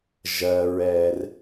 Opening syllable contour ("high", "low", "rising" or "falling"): low